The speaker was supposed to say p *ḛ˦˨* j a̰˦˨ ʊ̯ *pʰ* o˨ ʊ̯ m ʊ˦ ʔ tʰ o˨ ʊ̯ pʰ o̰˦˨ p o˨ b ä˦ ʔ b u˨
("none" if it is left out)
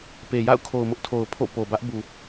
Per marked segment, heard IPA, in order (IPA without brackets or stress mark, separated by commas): e˨, kʰ